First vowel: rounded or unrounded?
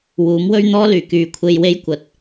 rounded